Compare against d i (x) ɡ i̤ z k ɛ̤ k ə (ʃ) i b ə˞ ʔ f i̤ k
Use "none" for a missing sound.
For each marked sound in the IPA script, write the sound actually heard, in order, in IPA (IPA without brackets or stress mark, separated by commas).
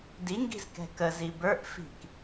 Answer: ŋ, z